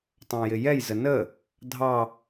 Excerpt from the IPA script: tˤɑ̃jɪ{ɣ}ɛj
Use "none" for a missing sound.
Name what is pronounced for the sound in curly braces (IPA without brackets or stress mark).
j